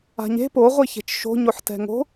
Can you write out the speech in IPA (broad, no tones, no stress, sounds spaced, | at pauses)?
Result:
a̤ ɲ e̤ p o ʁʷ i ç e̤ t͡ʃ ʃ o̤ ɲ o ħ t ɛ̤ ŋ o̤